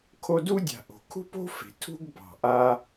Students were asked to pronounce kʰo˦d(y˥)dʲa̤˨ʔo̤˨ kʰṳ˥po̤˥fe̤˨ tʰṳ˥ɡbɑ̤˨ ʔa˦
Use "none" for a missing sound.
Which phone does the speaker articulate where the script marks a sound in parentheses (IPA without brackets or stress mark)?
u˥